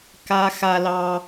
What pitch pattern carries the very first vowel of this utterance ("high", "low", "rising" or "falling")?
high